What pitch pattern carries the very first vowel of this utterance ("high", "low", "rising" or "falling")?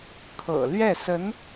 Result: low